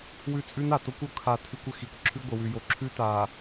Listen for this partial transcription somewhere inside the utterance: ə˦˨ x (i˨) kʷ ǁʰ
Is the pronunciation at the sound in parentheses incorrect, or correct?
correct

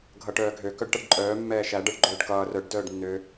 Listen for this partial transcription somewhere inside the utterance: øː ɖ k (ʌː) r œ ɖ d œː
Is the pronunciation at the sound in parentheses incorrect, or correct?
correct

